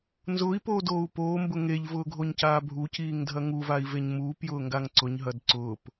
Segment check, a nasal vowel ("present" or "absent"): absent